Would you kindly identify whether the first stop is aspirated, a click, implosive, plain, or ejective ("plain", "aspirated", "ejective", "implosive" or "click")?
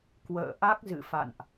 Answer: plain